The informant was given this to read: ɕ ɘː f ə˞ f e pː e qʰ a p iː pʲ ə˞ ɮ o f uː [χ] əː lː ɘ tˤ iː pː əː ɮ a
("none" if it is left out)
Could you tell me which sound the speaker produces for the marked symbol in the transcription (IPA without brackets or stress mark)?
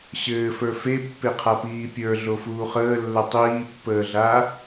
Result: χ